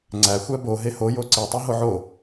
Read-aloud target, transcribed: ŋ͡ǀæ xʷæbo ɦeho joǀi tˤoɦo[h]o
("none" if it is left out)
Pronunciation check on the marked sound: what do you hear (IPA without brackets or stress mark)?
ʕ